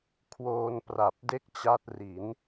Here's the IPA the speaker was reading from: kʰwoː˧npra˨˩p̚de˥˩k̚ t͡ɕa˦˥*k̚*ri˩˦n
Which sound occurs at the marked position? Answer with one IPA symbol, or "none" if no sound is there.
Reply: t̚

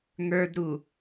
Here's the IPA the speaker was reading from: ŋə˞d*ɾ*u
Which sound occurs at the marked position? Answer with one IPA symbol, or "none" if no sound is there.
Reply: ɾ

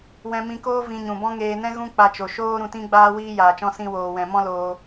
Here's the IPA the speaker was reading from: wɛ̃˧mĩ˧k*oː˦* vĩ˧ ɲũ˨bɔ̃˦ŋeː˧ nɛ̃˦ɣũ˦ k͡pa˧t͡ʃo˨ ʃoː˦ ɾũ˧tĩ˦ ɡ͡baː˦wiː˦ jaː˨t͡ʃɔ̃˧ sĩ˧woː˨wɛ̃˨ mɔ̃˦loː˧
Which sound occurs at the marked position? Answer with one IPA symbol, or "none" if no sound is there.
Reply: oː˦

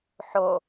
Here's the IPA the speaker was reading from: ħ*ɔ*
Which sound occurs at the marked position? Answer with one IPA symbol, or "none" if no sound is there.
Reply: o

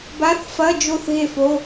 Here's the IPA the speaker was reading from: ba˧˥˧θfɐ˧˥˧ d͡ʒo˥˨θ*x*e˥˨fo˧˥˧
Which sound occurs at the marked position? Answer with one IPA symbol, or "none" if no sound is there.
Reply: ɣ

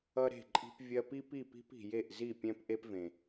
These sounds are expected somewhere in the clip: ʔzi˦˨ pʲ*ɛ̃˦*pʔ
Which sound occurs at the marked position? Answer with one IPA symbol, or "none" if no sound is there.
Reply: ɛ̃˦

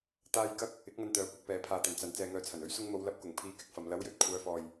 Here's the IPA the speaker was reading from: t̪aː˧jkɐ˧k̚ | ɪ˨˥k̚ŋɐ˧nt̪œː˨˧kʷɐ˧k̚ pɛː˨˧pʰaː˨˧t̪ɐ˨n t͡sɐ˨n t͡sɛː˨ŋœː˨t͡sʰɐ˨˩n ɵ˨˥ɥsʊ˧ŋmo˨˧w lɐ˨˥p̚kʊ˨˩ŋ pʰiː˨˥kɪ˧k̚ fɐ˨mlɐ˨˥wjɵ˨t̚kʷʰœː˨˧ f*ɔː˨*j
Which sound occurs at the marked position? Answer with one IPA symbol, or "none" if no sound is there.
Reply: ɔː˨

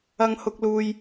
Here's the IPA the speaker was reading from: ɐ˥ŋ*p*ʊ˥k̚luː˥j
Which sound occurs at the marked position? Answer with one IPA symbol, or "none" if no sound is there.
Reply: h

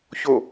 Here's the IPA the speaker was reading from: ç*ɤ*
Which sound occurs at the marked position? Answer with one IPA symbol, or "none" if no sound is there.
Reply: o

